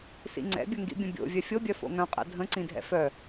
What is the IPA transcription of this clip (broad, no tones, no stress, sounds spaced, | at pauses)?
s ḭ ŋ͡ǀ ɛ̰ bʲ ə ŋ ɡ ḭ bʲ ə̃ bʲ o̰ vʲ œ fʲ o bʲ œ f o̰ ŋ œ̃ qʼ ɛ̰ dʱ ə̃ ǀ ĩ dʱ ɛ̰ f œ